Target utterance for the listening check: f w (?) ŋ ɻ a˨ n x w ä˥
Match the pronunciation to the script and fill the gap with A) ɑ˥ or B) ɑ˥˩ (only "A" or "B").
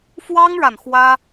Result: A